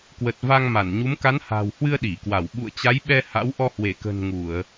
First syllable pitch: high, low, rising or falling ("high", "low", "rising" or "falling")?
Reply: low